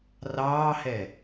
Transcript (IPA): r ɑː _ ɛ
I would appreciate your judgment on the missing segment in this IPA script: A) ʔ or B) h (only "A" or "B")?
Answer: B